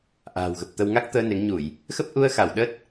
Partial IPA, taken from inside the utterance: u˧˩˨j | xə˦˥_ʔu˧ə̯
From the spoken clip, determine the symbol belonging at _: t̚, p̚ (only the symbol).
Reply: p̚